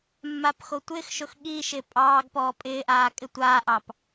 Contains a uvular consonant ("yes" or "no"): no